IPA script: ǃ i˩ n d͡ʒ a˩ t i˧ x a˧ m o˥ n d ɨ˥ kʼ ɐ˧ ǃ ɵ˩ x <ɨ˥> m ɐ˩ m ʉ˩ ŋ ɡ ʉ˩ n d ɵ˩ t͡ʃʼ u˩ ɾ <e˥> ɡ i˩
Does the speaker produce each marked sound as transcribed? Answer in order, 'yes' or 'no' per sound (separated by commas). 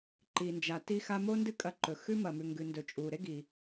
no, yes